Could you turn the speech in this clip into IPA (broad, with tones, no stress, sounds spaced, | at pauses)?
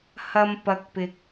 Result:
h ɐ˧ m p ɐ˨ k̚ p ɪ˨ k̚